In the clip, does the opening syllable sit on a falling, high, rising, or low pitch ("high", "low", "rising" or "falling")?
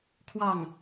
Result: falling